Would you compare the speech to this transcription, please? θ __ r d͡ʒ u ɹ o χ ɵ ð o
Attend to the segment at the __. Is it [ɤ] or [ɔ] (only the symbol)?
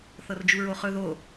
ɤ